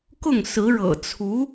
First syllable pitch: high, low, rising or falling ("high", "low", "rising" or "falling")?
falling